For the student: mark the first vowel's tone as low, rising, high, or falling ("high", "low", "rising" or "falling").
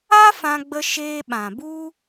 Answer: high